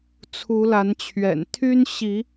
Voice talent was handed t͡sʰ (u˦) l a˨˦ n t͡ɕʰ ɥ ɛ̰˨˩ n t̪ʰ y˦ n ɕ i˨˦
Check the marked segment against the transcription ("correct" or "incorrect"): incorrect